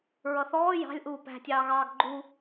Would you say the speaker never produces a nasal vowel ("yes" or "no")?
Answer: yes